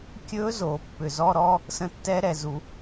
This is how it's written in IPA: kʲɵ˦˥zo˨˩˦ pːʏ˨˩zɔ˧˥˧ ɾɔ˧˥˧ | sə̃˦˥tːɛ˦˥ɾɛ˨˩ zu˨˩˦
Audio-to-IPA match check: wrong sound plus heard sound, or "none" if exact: none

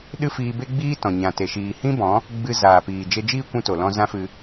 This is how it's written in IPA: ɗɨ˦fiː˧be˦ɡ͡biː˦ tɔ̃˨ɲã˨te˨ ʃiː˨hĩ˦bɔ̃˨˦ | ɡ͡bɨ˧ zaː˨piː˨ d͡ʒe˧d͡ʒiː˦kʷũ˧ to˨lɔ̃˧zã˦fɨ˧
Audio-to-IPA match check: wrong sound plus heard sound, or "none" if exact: none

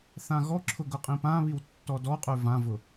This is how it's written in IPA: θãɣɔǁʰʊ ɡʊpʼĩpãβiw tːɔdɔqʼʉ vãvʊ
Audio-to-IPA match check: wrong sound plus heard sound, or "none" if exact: pʼ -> qʼ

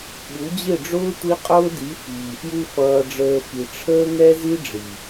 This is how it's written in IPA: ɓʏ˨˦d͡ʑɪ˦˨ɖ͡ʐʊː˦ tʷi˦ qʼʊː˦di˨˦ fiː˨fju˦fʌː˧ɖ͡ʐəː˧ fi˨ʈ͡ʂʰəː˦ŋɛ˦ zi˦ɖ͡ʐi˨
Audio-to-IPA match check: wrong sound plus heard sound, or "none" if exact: ʏ˨˦ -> u˨˦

